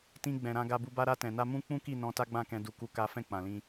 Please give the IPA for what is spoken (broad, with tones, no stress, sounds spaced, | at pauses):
t ĩ˧ ɡ͡b ɛ̃˨ ɾ ã˧ ɡ a˧ b u˧ b a˦ ɾ a˧ t ɛ̃˨ n a˧ m ũ˦ k͡p ũ˦ k i˦˨ n ɔ̃˧ t a˦ ɡ͡b ã˦˨ k ɛ̃˧ d u˧ k u˦ k a˦ f ɛ̃˦˨ k͡p ã˨ l ĩ˧